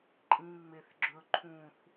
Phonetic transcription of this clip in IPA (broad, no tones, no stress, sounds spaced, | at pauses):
ǃʼ ĩ ŋ͡m e θ ɡ͡ǁ ɵ ǃʰ ũ θ